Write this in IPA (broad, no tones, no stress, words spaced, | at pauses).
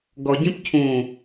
ɡɔɟĩp cʰũ